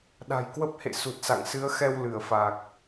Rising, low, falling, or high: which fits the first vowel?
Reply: low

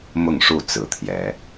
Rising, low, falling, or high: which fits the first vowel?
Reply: falling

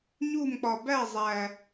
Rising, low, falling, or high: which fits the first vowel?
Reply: falling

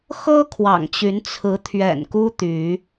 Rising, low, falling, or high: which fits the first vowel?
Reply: high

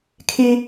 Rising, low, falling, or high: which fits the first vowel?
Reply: high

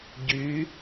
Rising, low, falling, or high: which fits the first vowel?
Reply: rising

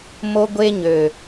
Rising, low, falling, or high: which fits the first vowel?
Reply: high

